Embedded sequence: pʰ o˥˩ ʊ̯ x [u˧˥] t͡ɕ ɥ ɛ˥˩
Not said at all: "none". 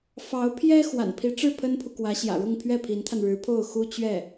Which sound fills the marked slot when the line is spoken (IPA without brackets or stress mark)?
u˥